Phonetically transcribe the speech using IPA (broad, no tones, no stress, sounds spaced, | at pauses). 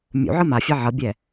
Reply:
mʲ ṵ ʕ ɯ m a fʲ ɛ ʕ ʌ bʲ ɛ